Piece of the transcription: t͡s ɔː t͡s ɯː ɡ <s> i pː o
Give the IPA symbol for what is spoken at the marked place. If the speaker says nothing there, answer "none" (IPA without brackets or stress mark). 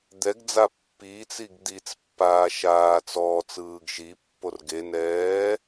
ʃ